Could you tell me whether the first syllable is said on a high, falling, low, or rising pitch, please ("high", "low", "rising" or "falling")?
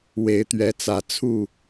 rising